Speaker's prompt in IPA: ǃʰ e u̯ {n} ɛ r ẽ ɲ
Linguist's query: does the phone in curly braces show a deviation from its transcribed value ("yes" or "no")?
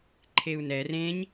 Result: no